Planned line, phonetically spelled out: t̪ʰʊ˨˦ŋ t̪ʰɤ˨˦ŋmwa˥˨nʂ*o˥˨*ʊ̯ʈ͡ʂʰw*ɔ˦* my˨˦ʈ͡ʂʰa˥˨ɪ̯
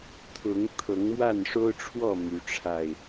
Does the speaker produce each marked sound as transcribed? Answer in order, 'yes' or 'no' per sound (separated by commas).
no, no